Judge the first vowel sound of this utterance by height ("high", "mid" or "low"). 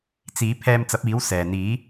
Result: high